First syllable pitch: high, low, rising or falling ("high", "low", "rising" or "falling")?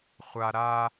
high